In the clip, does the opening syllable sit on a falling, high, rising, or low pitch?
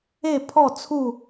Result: falling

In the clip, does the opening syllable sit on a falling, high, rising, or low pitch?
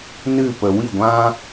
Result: falling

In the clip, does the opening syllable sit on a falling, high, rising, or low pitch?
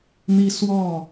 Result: high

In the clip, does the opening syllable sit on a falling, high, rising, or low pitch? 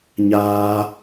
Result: high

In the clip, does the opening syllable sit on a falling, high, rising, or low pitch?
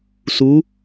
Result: rising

